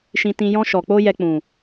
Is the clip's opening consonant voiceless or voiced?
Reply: voiceless